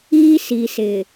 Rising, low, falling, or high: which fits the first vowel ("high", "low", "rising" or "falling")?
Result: high